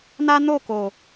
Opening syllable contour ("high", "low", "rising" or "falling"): high